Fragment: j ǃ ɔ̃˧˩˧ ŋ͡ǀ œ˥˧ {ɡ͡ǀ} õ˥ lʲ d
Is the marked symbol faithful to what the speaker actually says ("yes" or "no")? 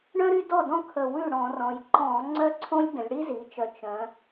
no